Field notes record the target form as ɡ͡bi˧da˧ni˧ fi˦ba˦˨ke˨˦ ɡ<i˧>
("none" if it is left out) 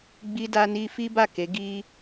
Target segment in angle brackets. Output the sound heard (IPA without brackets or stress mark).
i˧